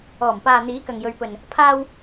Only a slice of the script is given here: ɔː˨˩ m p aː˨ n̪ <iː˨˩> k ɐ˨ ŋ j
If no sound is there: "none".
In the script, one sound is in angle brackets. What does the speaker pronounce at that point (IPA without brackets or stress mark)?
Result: iː˨˥